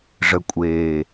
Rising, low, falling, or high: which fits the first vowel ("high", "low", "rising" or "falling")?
low